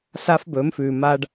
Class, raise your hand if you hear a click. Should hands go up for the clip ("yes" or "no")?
no